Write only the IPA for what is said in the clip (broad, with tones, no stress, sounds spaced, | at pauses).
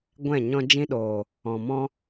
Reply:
ɡʷ ɛ̃˦˨ ɲ ɔ̃˧ d͡ʒ ĩ˧ ɗ oː˨ | ɔ̃˨ m ɔ̃˦